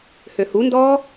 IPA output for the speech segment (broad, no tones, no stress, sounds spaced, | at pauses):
h ø h u n d ɔː